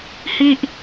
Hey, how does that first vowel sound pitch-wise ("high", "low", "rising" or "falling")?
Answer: falling